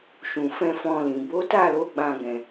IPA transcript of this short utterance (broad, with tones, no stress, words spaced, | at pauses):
ʃũ˨fɛ̃˧ fɔ̃˧lĩ˨ bo˨˦ta˦˨lo˨˦ ɡ͡bã˦ɡɛ̃˧